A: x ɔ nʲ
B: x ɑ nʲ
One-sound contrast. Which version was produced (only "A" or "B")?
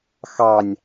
B